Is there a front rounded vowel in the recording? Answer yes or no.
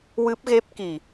no